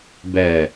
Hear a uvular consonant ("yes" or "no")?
no